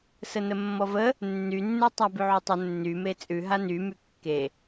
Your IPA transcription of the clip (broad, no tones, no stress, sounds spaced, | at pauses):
s ə n ə mː ɔ v ə | nː y nː ʉ tˤ a b ʉ ʕ u tˤ ə nː y m e t͡sʼ ʉ ɦ a n y m y kː e